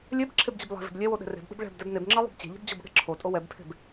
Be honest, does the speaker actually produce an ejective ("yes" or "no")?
yes